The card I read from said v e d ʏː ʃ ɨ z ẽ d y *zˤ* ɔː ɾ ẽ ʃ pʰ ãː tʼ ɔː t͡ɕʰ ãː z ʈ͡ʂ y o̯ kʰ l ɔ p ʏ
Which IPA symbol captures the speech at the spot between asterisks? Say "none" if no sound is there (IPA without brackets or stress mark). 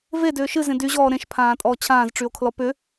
ʑ